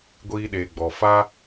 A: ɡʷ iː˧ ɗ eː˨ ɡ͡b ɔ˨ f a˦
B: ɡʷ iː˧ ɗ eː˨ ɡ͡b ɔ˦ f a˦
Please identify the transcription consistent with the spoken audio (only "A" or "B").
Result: A